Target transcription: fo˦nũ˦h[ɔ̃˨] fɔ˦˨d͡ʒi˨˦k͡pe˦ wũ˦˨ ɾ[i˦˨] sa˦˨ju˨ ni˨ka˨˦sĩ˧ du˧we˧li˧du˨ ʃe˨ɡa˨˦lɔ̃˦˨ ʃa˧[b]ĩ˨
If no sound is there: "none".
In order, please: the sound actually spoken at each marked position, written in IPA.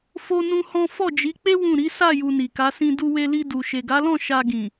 ɔ̃˦, i˨˦, ɡ

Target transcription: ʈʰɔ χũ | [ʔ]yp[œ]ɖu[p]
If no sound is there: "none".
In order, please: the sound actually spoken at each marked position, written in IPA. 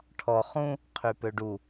qʰ, ø, none

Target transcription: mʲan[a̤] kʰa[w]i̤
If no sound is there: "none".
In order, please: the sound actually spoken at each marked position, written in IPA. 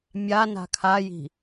a̤, j

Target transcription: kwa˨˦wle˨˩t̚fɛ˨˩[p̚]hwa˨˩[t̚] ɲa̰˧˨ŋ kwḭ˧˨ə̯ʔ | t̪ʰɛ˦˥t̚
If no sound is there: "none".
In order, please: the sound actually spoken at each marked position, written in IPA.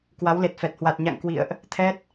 t̚, t̚

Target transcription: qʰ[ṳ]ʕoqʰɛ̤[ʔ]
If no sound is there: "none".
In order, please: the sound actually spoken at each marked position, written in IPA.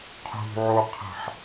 ṳ, ħ

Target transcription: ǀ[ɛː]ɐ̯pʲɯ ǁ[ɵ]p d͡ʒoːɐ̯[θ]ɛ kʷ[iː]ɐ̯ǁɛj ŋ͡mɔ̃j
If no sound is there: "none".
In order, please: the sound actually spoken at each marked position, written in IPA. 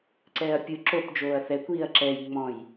ɛː, o, θ, iː

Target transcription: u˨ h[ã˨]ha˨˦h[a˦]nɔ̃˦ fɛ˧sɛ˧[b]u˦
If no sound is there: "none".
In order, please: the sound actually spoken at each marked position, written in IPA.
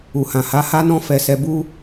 ã˨, a˦, b

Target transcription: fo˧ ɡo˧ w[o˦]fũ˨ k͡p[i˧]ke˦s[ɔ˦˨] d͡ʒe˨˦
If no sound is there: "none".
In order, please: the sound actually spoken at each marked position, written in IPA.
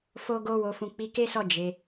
o˨, i˨˦, ɔ˦˨

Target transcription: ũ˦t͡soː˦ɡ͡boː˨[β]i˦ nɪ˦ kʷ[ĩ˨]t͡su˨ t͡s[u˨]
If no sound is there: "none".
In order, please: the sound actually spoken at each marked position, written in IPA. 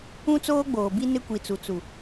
b, i˨, u˨

